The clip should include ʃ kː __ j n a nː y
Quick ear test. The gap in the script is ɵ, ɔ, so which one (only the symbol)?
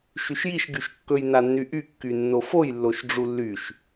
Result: ɵ